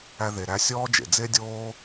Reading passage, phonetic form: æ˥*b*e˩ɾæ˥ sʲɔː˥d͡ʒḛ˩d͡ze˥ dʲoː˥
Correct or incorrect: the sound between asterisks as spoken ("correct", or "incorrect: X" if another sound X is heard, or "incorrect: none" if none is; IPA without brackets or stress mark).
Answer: incorrect: ð